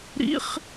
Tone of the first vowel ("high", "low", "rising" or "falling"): high